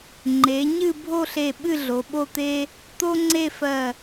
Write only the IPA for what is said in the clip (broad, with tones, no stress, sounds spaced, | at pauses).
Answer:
ŋ͡ǃ e˩˧ ɲ ɨ˥˧ bʱ o˥˧ ɬ e˧˩ ɓ ɨ˥˧ ɮ o˩˧ ɓ o˥˧ t̪ e˥ | t̪ o˥ ŋ͡ǀ e˥˧ f ɜ˧˩